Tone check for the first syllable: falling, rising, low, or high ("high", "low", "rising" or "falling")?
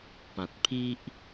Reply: low